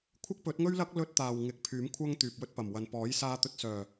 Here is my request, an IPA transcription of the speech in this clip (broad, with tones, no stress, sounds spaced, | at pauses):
kʷʰ ɪ˥ k̚ p ɵ˨˥ t̚ ŋ ɵ˥ ɥ l ɐ˥ k̚ l ɵ˥ t̚ t̪ aː˨ w ŋ ɪ˨˥ k̚ pʰ yː˨˥ m kʷʰ ɐ˥ ŋ t̪ yː˨ p̚ w ɵ˥ t̚ p ɐ˨˩ m w ɐ˨ n p ɔː˨˥ j s aː˧ t̪ ɵ˨ t̚ s œː˨˩